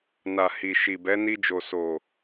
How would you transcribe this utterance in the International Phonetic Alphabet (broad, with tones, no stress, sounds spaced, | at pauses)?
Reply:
n a˨ h i˨ ʃ i˨ b ɛ˨˦ n i˧ d͡ʒ o˨ s o˨